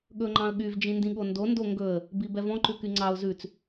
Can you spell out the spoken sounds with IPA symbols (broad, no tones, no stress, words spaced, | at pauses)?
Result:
ɠɵŋ͡ǃɑ̃ə̯ɠyv d͡ʒĩndĩɠondo ndoŋɡɵə̯ | bibɛvɔ̃ ǃʉkyŋ͡ǀɑʊ̯ zʉt͡s